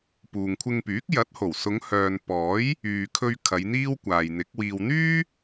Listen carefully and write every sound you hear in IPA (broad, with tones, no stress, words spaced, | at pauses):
puː˨ŋkʷʰɪ˧ŋpyː˨˥k̚ jɐ˨˥t̚ho˨˩w sʊ˨˧ŋhœː˨n pɔː˨˥j | yː˨kʰɵ˧ɥ kʰɐ˨˧jn̪iː˥wkʷaː˨jn̪ɪ˨˥k̚ wiː˨wn̪yː˥